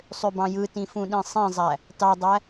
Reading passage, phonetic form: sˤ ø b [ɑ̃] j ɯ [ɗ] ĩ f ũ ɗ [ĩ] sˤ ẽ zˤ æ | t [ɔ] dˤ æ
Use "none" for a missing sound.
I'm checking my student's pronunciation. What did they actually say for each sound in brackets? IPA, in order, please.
ɑ̃, t, ĩ, ɑ

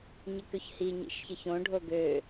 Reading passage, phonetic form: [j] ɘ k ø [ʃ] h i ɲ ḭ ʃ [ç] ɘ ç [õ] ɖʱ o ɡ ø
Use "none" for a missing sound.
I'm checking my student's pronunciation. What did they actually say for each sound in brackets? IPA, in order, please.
ɲ, ç, ç, õ

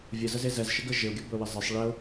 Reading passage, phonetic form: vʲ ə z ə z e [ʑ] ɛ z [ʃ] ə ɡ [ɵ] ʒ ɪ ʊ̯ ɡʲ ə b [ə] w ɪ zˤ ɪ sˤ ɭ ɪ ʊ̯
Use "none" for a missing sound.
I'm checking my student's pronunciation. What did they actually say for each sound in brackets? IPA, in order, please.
z, ʃ, ə, ɵ

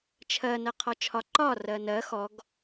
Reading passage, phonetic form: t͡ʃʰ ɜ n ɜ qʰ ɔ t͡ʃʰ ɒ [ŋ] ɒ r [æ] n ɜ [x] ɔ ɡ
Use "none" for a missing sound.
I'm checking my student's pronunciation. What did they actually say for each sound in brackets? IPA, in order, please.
ǃ, ɜ, x

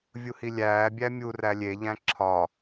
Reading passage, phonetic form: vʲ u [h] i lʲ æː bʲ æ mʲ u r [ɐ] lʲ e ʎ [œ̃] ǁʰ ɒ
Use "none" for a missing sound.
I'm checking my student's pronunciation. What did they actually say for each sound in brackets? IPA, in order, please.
h, æ, æ̃

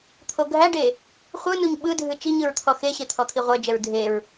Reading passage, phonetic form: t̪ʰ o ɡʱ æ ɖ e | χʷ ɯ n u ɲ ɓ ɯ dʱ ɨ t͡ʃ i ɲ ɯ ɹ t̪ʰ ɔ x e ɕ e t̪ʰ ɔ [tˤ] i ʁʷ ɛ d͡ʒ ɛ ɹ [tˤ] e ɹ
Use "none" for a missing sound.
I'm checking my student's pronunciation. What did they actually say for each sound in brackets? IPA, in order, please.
t̪ʰ, dʱ

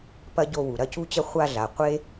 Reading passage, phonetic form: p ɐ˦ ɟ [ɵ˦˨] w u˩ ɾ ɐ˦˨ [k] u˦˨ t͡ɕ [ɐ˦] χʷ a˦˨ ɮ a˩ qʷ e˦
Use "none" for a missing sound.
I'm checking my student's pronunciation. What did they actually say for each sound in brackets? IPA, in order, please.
o˦˨, c, ɐ˦

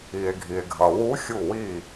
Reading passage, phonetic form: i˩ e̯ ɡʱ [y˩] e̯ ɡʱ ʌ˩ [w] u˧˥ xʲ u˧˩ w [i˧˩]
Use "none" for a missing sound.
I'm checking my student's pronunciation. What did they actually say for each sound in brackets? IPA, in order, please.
i˩, w, i˧˩

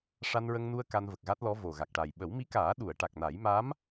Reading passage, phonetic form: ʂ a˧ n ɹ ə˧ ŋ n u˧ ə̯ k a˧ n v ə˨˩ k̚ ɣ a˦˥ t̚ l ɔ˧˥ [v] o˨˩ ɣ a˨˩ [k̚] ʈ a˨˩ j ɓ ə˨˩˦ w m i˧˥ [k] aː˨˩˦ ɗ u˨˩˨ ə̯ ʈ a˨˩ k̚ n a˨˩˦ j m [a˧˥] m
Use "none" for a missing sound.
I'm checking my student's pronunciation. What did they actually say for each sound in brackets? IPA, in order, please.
v, k̚, k, a˧˥

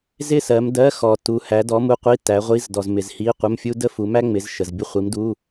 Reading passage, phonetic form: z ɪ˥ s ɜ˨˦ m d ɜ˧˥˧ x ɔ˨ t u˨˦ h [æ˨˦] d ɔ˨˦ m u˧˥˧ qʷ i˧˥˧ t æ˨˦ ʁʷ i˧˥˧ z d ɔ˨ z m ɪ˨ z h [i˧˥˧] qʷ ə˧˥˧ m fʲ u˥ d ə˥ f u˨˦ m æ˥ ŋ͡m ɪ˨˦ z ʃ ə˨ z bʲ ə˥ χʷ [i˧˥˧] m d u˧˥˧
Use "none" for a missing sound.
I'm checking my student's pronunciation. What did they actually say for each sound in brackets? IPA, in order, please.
æ˨˦, i˧˥˧, i˨˦

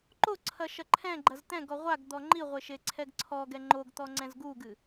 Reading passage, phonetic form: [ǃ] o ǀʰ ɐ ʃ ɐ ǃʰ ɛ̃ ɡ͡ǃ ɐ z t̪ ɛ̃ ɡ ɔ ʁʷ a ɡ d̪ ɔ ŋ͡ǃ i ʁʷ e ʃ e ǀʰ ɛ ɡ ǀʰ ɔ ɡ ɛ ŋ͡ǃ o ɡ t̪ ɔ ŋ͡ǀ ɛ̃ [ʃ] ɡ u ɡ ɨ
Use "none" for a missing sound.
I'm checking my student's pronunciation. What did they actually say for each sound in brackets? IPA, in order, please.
ǃ, z

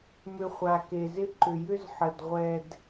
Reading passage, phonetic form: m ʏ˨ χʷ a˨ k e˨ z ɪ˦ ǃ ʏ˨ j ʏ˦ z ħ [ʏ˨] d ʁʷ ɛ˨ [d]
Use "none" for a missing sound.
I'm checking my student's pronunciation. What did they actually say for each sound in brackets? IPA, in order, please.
ə˨, d

